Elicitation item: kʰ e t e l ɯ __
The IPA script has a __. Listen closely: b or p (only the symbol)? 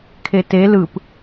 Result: p